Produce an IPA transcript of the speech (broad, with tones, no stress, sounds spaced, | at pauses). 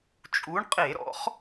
t͡ʃʼ u˨˥ ɳ qʼ e˧˩˧ ɾ ɔ̰˨˥ χ